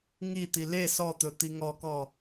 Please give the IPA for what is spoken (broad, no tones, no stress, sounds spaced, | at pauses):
ŋ i t̪ i l e s ɔ t̪ ɵ t̪ i ŋ ɔ k ɔ